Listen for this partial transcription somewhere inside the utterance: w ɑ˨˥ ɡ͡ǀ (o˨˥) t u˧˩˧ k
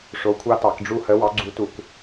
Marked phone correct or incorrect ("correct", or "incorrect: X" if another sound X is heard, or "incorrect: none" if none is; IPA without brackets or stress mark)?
incorrect: u˨˥